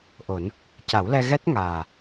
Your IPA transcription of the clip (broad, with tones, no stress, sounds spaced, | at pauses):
ʔ o˨˩˦ n | c a˨˩˦ w l ɛ˧ ɣ ɛ˦˥ t̚ ŋ aː˨˩